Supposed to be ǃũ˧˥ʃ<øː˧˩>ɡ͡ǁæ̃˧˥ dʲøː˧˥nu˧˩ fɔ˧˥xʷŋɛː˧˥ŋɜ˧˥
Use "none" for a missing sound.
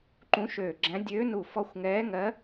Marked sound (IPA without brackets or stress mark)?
øː˧˩